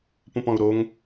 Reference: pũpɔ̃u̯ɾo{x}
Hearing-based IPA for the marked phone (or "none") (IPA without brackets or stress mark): ŋ